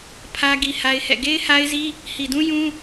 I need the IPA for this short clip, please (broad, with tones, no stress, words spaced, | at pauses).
pʰä˦ ɡi˦ha˦ɪ̯hɛ̰˦˨ ɡe˦ɪ̯ha˦ɪ̯zi˦ | hi˨dũ˦jũ˦